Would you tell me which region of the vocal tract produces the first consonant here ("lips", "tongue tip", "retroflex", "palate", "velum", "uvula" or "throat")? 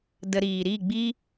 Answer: tongue tip